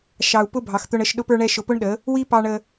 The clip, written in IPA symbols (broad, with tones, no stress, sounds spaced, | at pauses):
ʃ ɑ˨ u̯ p ʊ˧ bʱ ɑ˨ x t̪ ʊ˧ ɳ ə˦˨ ʃ ɗ ʊ˧ p ə˞˧ ɳ ɛ˧ ʃ ʊ˧ p ʊ˦ ɳ ɗ ə˨˦ | w i˦ p ɑ˧ ɳ ə˧